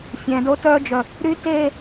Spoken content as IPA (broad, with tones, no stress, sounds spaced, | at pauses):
fʲ ɛ̃˨ d o˦ t œ˦ d͡ʒ œ˨ | ɾ y˦ t e˦˨